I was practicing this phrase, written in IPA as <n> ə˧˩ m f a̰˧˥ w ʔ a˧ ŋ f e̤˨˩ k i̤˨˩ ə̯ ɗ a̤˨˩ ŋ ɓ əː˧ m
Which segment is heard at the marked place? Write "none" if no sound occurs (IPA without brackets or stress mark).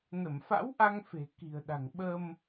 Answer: n